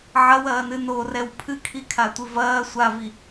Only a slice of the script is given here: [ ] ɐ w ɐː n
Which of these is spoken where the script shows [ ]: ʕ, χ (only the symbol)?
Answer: ʕ